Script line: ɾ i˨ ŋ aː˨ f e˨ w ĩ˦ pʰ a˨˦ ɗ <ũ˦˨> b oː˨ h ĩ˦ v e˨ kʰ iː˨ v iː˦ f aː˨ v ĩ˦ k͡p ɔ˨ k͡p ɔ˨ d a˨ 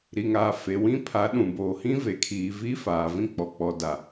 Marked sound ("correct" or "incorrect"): incorrect